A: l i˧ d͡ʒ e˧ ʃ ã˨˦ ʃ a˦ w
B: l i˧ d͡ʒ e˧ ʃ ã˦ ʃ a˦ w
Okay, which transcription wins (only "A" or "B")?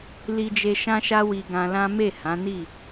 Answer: B